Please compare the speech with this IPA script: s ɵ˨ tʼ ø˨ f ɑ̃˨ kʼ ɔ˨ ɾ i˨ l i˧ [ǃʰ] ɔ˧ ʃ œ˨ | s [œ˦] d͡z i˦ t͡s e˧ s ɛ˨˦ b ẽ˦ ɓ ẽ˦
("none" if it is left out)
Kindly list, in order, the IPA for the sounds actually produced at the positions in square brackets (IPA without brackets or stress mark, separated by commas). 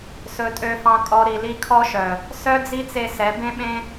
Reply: kʰ, œ˦